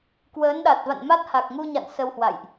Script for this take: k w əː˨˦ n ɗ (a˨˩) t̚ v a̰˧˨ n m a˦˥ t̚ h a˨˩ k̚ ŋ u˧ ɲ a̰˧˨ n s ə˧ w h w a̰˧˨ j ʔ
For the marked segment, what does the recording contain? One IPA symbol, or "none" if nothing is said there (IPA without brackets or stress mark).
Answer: a˨˩